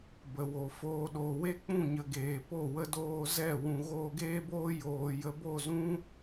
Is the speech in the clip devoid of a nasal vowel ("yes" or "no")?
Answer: no